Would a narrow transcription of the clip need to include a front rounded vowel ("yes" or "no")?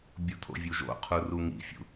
no